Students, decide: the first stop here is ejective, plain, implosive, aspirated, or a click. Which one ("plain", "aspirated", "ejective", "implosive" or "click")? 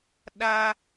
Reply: implosive